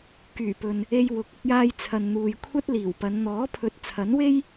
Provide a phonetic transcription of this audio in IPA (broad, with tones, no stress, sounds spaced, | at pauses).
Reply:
k yː˨˩ p ɵ˨ n | e˧ j w ʊ˨˥ k̚ ʊ˧ k̚ j aː˧ j t͡sʰ ɐ˨ n n̪ uː˨ j kʷʰ ɐ˥ t̚ l iː˨˩ w p ɐ˨˧ n n̪ ɔː˨˥ pʰ ɵ˨˥ t̚ t͡sʰ ɐ˨˥ n w e˥ j